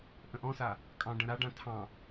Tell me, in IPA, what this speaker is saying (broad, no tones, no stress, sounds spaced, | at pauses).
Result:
ʔ ə̃ ʔ ɔ̃ s a | kʼ ɑ̃ ɖ ə̃ ɾ a ɖ ã tʰ ɑ̃